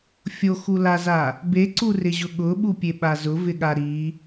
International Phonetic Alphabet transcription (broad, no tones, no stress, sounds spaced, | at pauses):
fʲ o x u l a z a | b e ǀ u r ɪ ʑ ʊ ɠ ʊ ɓ u pʲ e ɓ a z ʊ v ɪ ɠ a ɾ i